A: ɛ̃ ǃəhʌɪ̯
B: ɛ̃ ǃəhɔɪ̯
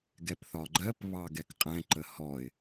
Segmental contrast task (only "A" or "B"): B